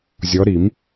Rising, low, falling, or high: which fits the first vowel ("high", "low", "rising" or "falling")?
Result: rising